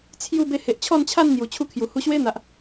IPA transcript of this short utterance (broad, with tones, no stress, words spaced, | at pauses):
t͡sʰju˥˧ be˧he˨ʔt͡ɕʰɔ˥˧nt͡ɕʰa˥˧n n̪ju˨˩t͡ɕʰu˦kʰju˨˩ hu˧ɕwe˦n̪a˨ʔ